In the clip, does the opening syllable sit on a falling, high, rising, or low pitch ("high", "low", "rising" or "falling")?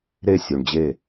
falling